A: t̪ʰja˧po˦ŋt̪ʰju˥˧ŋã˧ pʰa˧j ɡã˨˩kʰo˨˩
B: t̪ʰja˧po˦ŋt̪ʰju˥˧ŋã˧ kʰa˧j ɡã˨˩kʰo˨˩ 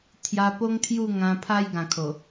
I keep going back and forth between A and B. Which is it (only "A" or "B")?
A